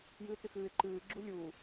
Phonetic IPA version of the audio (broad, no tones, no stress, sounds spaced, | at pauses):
j ɨː t͡s ɨ x ɨː ɪ̯ ǃ ɨː ɡ͡ǁ u lʲ uː